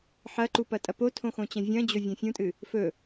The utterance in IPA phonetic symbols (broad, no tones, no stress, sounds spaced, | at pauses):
ħ ɐ ǃ u p ɐ tʼ ɐ p o tʰ õ x õ t͡ɕ ɐ̃ vʲ ɐ̃ d͡ʑ o vʲ ɐ̃ fʲ ũ tʼ ɨ | f ɵ